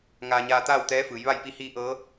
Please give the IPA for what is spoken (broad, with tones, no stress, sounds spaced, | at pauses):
ŋ aː˧ ɲ aː˧ t̪ aː˥˨ w t̪ ɛː˧˥ f ɯː˩˧ j ʋ a˥˨ j p i˧ h iː˧ ʔ ɤː˧˥